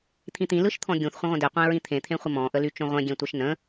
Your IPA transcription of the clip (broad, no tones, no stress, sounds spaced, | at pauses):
t̪ʰ ĩ t̪ ĩ l ɯ ʃ t̪ʰ ɔ̃ ɡʲ ũ θ χʷ ə̃ ʁʷ ə̃ d e qʷ ẽ ɹ ĩ t̪ʰ ẽ t̪ʰ ẽ χʷ ə m ɔ̃ ʔ ə l y t͡ʃ õ ʁʷ ẽ ɡʲ ẽ tʷ ə ʃ n ə̃